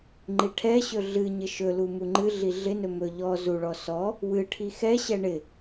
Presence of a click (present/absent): present